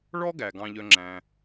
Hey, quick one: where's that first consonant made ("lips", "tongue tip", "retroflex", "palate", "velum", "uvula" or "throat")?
retroflex